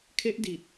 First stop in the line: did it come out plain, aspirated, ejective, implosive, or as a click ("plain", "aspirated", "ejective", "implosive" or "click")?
aspirated